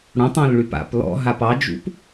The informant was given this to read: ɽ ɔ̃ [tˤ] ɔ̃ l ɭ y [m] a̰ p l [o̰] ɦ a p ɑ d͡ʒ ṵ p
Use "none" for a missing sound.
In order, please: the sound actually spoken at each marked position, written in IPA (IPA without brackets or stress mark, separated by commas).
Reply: tˤ, p, ɔ̰